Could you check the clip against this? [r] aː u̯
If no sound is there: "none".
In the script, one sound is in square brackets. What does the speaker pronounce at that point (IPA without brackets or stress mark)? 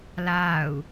l